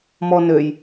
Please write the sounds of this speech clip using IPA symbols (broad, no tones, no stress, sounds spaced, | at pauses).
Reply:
m ɔ n ø j